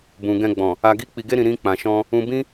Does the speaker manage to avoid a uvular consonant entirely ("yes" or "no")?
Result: yes